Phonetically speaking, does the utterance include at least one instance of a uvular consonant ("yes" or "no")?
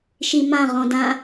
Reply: yes